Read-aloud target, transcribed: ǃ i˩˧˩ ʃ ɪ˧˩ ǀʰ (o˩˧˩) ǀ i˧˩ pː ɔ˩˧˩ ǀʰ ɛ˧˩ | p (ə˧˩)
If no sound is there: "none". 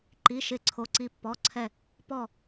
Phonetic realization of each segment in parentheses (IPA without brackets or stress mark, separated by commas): o˩˧˩, ɔ˧˩